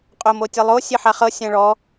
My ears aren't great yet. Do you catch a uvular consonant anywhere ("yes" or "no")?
yes